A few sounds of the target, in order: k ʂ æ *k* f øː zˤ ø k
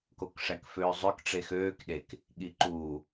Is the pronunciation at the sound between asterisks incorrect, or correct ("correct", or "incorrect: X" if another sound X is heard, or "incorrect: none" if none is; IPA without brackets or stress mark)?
correct